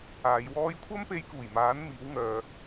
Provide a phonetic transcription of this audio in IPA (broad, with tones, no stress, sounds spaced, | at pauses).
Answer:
aː˨˧ j w ɔː˥ j kʷʰ ɐ˥ m p e˧ j k uː˨˩ j m aː˨˥ n m iː˨˥ w ŋ œː˨